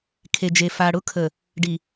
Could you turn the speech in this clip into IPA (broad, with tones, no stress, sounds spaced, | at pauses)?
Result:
kʰ e˨ d͡ʒ e˨ f a˨ ɽ ʊ˦ kʰ ə˨ | ɖ i˨